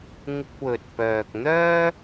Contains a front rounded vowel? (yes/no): yes